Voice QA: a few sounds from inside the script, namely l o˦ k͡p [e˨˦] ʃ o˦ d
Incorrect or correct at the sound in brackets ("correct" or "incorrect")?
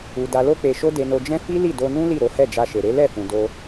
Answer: incorrect